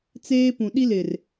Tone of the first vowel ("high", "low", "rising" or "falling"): high